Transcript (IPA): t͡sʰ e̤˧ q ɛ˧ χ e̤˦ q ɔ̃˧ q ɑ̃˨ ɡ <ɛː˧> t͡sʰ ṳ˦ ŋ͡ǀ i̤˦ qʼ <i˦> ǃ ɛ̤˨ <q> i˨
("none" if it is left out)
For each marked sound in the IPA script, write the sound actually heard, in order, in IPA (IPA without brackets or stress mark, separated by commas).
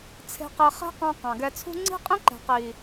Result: ɛ˧, ĩ˦, q